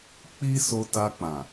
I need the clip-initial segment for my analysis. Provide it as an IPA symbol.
k͡p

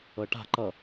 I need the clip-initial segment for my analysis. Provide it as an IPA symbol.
ɤ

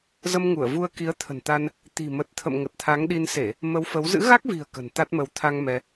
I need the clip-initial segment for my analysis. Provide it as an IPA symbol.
z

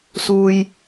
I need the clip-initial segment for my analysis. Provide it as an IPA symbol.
s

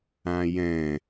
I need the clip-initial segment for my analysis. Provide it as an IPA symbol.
ã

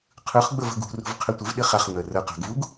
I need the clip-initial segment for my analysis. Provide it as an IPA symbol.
qʰ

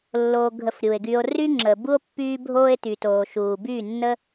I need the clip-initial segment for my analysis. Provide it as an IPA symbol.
lː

